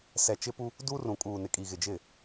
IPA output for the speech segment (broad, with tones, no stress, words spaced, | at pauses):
sɛ˨t͡ʃɪ˦pu˦ | du˦rũ˨kʼuː˨nɪ˨ kʼi˨ɣɪ˨d͡ʒɪ˦˨